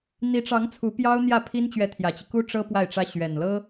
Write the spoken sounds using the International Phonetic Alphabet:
n̪ i˧˥ ʈ͡ʂ ɑ˧˥ ŋ t͡sʰ u˧˥ p j ɑ˥ ʊ̯ n̪ j ä˥˩ pʰ i˥ n t͡ɕ ɥ ɛ˧˥ t̪ʰ j ä˨˩ t͡ɕ i˦ k u˥ ʈ͡ʂ ɤ˥ p w a˥˩ ɪ̯ ʈ͡ʂ ä˥ ɕ ɥ ɛ˨˩ n l ɤ˥

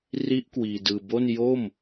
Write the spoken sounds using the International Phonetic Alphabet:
r i˦˥ ʔ k w iː˧ d ɯː˧ b o˥˩ n j o˥˩ m

